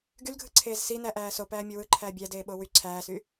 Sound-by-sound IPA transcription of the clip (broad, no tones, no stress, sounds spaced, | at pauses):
ɡ y l ɡʱ ɯ ǀʰ eː z s i n æ ʔ æː s o p æː mʲ o w ɯ ǃʰ æː bʲ æ d eː ɓ o w y ǀʰ æː s y